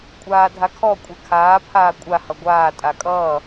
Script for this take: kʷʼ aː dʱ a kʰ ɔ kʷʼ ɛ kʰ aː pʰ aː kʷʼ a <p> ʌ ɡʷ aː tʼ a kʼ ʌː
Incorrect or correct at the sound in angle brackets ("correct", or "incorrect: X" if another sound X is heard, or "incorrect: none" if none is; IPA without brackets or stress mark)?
incorrect: h